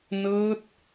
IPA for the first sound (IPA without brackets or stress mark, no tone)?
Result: n